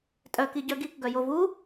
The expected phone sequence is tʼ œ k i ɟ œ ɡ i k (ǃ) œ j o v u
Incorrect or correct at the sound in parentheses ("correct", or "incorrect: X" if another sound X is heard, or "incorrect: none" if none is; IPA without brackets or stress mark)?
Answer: incorrect: ɡ